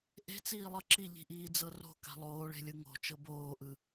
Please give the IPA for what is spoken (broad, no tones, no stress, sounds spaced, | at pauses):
ʔ e̤ t͡s iː lˠ ɤ ǁ i ʎ i̤ ʔ iː d͡z ɤ r o̤ k a̤ lˠ oː ɭ e̤ lʲ ɯ ŋ o̤ t͡ʃ ɤ b oː ʔ ɯ